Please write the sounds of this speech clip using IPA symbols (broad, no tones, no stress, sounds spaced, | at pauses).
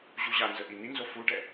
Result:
ʑ u ʑ a n z ə ʔ i n i n z o f u ɖ ɛ